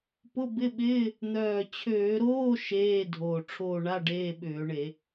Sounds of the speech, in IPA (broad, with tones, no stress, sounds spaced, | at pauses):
p ʊ˧˥˧ b ɪ˧˥˧ ɓ ɪː˧˥˧ | n̪ œː˨˩ t͡ɕʰ øː˧˩˧ ɾ oː˧˥˧ ʃ eː˧˥˧ dʱ oː˨˩ ʈ͡ʂʰ oː˦˨ ɳ a˧˥˧ ɖ eː˧˥˧ ɓ ʏː˧˩˧ ɳ e˧˩˧